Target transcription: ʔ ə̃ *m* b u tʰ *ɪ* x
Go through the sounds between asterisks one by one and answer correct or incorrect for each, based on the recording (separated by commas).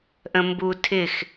correct, correct